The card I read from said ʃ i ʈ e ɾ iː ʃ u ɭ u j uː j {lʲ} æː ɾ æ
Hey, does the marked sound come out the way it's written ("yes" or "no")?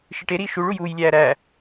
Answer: yes